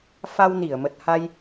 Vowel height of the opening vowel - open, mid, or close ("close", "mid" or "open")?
open